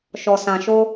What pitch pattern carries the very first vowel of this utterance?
low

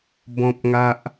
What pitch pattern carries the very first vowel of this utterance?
high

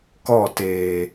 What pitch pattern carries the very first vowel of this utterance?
falling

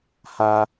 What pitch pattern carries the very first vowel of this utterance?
high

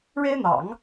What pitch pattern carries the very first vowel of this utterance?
high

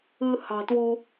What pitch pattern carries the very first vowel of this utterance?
low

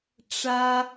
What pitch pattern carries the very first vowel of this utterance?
high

